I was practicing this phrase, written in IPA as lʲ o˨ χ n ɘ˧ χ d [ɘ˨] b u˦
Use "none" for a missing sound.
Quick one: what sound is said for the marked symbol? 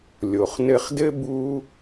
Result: ɘ˦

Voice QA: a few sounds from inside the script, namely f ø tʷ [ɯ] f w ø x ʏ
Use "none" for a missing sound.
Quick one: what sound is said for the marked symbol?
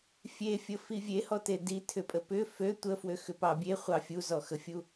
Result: ə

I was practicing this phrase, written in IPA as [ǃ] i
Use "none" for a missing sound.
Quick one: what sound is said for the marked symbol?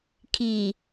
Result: kʰ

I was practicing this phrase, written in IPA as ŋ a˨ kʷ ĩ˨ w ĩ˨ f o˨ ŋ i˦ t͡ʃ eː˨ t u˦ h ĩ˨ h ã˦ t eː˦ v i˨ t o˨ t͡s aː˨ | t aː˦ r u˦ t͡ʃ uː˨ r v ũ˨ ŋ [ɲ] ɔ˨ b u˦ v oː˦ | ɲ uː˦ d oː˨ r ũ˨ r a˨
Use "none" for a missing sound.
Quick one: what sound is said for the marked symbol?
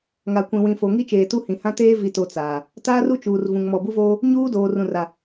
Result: m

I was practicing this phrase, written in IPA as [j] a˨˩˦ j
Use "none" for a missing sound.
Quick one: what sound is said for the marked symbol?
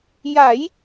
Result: j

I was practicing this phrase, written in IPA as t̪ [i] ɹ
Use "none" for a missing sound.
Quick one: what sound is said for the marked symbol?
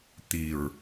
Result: i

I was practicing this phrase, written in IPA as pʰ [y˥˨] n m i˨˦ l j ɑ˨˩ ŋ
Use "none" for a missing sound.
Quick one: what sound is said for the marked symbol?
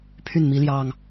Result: y˥˨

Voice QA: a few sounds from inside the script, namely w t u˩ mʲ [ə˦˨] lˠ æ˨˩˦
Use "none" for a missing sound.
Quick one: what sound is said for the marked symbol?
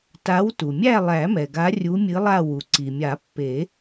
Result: æ˦˨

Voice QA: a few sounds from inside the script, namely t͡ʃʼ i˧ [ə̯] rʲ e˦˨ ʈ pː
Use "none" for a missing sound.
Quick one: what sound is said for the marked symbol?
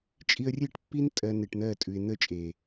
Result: ə̯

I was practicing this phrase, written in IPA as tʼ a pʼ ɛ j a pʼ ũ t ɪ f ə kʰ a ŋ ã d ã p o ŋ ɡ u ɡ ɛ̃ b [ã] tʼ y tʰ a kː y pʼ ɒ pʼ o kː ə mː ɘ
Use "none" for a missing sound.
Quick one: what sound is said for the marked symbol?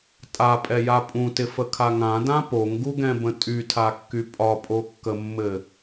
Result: ə̃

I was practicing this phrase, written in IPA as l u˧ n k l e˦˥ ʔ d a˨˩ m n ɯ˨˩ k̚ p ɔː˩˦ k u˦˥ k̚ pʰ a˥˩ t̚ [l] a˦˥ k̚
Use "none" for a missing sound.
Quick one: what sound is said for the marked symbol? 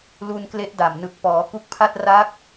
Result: r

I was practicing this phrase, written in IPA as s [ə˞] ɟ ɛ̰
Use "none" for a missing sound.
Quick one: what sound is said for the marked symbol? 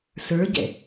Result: ə˞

